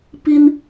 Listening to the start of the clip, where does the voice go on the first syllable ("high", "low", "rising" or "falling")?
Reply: high